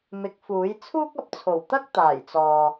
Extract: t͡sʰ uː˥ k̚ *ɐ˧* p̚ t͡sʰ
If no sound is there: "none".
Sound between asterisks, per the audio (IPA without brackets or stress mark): ɐ˧